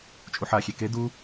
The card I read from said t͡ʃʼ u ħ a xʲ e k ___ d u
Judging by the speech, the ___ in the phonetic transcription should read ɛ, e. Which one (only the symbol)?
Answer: e